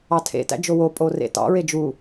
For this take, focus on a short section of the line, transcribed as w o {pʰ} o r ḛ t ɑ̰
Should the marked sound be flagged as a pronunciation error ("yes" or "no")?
yes